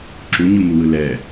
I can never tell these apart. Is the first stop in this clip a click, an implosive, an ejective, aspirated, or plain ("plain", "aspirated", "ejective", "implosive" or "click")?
click